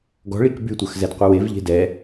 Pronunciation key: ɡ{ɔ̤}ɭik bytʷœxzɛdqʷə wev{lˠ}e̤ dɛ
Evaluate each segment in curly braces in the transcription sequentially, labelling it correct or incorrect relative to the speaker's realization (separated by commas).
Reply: correct, incorrect